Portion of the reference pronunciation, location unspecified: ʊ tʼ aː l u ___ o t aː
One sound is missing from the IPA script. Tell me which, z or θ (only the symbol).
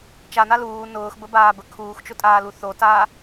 θ